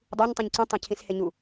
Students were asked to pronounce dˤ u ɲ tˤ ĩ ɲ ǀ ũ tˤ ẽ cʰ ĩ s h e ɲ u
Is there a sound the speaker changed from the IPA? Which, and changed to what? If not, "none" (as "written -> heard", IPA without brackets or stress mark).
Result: none